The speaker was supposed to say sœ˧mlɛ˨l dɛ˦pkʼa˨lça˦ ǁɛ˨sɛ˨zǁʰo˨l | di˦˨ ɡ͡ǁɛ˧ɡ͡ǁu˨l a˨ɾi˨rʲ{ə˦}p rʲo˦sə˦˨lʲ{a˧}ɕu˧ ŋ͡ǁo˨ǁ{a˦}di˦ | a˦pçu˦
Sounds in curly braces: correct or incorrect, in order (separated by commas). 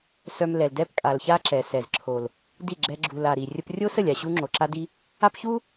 correct, incorrect, correct